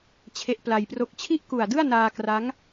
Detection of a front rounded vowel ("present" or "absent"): absent